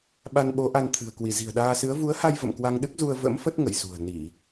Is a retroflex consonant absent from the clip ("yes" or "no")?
yes